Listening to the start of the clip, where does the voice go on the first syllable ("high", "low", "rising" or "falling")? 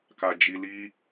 low